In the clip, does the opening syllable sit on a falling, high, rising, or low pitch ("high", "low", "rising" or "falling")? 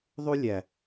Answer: high